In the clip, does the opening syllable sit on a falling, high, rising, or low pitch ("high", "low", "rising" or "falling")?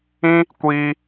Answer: high